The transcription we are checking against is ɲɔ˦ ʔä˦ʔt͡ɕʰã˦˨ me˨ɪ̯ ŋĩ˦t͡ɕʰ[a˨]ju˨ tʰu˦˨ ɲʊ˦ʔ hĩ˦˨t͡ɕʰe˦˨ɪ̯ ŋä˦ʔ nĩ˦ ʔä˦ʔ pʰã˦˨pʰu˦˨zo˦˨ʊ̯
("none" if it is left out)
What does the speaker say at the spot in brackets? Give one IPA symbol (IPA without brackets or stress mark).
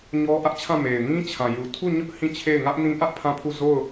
ã˨